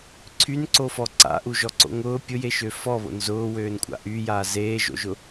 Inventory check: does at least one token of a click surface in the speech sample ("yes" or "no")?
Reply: yes